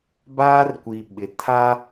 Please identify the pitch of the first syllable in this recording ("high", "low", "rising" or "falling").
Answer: high